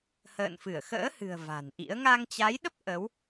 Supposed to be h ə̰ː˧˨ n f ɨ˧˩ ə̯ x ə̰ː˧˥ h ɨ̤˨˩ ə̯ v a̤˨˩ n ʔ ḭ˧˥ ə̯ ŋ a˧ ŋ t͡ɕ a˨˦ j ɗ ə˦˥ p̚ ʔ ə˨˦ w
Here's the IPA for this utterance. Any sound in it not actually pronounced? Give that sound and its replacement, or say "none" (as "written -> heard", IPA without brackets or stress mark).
none